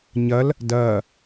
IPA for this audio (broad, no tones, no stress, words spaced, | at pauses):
ɲɐl | dɐː